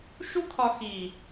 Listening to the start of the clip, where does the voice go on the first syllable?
high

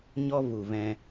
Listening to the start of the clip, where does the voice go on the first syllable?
high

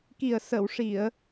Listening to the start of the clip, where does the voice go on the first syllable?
low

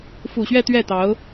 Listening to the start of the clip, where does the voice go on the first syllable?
low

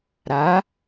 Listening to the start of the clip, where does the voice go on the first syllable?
rising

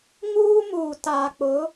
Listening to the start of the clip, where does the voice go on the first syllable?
high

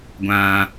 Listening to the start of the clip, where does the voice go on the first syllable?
high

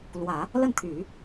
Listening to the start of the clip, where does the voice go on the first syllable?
low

